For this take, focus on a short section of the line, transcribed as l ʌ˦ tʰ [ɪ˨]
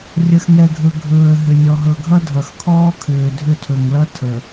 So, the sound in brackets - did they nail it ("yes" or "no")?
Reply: no